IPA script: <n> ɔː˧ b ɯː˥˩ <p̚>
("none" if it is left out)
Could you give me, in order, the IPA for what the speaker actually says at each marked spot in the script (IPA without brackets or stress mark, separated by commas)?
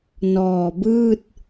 n, t̚